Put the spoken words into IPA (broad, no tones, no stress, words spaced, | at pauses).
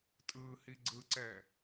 tʼɯːhiɡ͡ǀɯǀɛ